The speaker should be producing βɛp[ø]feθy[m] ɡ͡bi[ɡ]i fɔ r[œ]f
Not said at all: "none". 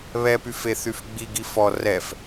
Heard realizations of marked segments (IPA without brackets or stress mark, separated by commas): y, f, ɡ, ɛ